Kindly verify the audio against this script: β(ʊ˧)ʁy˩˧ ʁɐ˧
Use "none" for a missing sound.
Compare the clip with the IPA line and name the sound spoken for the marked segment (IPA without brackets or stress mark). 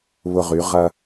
ʊ˧